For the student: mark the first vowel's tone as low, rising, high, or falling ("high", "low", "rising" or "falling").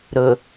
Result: low